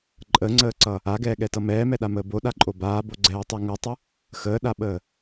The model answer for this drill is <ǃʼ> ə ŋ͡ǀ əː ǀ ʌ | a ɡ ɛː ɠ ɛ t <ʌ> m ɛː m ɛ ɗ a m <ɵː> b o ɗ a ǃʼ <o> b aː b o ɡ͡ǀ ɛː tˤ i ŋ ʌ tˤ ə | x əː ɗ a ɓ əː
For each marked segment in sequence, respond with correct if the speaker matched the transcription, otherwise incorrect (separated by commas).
correct, correct, incorrect, correct